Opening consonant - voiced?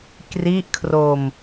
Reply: no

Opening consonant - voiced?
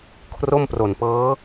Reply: no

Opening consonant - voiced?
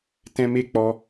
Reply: no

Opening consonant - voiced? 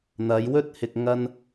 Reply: yes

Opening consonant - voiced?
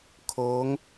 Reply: no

